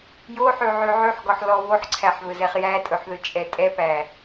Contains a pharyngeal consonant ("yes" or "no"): yes